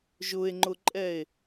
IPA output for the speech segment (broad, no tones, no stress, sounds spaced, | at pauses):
ʒ ʊ e̯ ŋ͡ǃ ʊ ǃʼ ɛ e̯